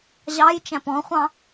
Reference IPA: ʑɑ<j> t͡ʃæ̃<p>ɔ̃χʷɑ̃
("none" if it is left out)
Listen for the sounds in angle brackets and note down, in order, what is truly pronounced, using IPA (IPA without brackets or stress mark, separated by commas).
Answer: j, p